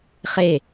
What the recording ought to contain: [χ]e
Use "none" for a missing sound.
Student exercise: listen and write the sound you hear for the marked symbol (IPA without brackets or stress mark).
χ